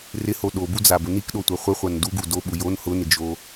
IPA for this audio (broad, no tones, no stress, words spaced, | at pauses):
rɪho ɗobud͡zabʊ nikɗotʷa χʷɪχʷan duɡu doɓu jon hʊnɪd͡ʒo